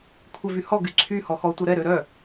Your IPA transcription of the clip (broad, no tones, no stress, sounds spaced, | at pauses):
kʷʰ ɛ v y h ɔ ɡ y ǀʰ y h ɔ x ɔ tʷ œ ɾ ɛ ɾ ø ɾ œ